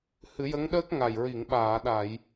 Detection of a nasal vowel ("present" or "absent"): absent